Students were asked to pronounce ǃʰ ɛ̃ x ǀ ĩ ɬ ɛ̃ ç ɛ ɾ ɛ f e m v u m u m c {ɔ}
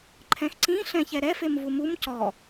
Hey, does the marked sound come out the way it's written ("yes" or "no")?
yes